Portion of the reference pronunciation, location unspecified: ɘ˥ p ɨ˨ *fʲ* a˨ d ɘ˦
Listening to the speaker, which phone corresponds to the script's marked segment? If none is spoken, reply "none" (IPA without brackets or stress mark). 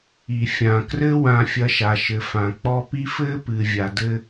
vʲ